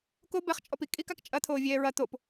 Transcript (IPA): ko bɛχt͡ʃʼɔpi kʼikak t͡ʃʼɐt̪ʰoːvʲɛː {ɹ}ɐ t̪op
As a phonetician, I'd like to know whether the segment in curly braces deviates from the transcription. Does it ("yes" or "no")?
no